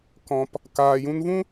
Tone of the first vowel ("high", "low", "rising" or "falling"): low